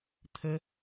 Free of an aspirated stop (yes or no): no